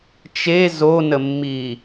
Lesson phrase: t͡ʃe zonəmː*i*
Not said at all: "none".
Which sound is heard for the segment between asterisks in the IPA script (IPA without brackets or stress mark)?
i